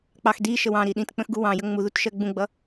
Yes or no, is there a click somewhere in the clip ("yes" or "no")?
no